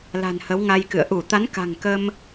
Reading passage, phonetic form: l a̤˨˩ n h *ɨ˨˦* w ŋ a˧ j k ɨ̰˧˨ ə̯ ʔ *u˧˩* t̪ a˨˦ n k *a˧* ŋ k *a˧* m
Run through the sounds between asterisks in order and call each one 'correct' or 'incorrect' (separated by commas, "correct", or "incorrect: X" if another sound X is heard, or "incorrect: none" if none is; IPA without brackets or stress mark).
incorrect: ə˨˦, correct, incorrect: a̤˨˩, incorrect: ə˧